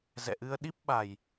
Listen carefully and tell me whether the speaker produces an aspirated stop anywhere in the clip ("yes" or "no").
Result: no